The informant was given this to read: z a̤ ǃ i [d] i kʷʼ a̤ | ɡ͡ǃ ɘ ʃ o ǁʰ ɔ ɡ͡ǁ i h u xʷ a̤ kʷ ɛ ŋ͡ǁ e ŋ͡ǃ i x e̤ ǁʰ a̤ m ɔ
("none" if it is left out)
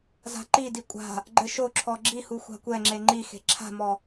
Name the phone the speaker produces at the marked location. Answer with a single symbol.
d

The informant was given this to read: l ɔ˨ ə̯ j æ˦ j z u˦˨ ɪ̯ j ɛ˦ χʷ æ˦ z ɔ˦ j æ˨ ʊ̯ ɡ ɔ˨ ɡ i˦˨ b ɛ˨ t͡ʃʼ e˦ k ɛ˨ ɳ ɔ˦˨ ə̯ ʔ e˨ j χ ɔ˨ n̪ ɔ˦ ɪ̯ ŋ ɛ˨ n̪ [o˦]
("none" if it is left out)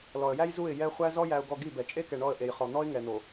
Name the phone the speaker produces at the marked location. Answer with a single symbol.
o˨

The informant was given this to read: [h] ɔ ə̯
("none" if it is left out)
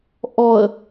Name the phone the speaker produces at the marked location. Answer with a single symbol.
ʔ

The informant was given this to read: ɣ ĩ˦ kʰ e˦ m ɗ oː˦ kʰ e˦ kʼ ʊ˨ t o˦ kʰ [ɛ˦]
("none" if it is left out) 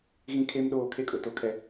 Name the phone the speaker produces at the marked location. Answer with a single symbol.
ɛ˦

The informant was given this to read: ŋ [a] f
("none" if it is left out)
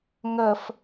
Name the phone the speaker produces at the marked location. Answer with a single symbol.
ɐ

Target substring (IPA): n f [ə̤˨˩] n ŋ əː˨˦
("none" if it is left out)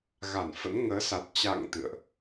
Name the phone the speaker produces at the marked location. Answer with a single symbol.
ə̰˧˥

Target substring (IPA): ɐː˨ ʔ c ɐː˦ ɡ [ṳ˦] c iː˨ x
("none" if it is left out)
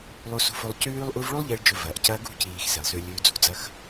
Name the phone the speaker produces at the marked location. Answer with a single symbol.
ṳ˦˨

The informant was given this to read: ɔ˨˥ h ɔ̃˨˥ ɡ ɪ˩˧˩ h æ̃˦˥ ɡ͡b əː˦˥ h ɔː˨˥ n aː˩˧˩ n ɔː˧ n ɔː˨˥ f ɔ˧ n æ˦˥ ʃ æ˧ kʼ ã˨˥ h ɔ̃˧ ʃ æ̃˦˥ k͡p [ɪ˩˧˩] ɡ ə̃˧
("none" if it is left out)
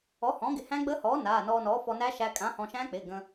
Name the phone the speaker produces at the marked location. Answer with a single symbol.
ɪ˩˧˩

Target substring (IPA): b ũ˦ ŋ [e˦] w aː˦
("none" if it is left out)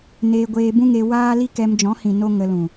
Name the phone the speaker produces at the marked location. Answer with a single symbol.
e˧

